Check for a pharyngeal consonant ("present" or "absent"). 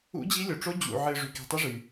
present